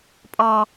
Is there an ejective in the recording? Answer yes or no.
yes